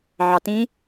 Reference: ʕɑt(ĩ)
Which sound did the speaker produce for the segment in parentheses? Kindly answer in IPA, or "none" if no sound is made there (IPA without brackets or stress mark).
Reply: ĩ